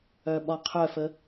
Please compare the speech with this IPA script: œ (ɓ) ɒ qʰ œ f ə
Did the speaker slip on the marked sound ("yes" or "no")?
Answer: no